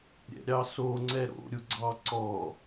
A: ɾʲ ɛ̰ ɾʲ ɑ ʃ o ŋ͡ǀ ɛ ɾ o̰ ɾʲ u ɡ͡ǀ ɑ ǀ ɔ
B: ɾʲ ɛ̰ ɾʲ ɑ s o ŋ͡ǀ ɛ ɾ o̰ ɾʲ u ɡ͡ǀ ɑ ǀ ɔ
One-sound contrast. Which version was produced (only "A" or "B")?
B